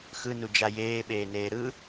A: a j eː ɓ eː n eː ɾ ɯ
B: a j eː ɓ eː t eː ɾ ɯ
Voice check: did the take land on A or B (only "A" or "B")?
A